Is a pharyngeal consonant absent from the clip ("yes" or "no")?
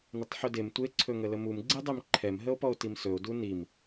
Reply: no